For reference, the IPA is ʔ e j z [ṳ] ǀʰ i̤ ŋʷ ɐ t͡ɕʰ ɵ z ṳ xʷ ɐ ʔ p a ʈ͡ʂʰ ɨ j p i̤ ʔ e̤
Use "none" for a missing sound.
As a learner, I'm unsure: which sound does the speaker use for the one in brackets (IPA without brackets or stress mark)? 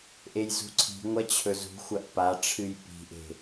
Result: ṳ